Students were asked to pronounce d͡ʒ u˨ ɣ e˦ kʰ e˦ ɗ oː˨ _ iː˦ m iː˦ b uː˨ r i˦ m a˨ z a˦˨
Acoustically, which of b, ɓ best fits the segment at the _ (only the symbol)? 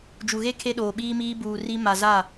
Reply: ɓ